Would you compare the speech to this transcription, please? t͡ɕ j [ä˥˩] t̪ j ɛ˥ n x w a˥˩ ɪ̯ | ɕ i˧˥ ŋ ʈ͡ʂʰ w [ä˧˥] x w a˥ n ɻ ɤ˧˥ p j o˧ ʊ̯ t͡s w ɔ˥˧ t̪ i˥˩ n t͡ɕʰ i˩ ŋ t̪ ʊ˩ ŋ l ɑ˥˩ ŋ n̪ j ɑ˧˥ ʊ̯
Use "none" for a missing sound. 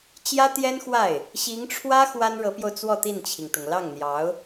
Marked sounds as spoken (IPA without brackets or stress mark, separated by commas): ä˥, ä˥